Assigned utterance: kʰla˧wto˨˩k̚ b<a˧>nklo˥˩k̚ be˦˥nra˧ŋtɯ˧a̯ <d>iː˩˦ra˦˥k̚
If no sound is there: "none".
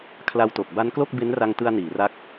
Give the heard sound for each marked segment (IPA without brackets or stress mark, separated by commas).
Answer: a˦˥, n